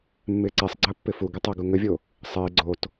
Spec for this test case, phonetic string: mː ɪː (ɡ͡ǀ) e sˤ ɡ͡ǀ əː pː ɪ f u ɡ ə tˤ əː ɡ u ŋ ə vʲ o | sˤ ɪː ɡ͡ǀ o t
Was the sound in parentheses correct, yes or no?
no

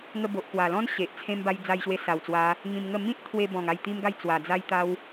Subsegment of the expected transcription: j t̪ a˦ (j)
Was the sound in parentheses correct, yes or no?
no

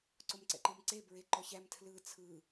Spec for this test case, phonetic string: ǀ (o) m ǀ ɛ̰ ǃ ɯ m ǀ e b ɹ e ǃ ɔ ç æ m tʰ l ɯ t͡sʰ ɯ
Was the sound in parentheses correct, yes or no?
yes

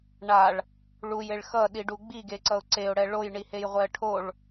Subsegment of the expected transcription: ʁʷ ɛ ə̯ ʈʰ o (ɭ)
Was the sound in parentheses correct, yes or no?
yes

